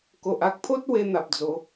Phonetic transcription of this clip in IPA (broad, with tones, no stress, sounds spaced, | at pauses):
k o˨ ʔ a˦ k̚ pʰ o˦ t̚ w e˧ n̪ a˨ p̚ d͡z o˨˦